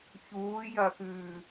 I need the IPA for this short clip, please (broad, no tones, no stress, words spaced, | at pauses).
çuːjɐxʉː